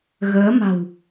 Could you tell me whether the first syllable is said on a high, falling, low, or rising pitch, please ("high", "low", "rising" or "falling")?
rising